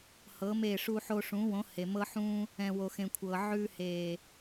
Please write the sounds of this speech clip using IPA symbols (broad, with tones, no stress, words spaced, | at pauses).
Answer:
hɤ˨˦me˦˨ ʂu˧ħo˧ʂũ˨˦wõ˨˦ he˨mɤ˦ħũː˦ | ɛ̃˨wo˨xẽ˨ kʷʰɤ˨ ʕʉ˧heː˨